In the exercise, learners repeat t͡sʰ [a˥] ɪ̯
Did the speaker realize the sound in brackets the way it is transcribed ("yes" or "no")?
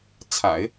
no